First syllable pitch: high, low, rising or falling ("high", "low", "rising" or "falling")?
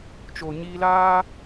low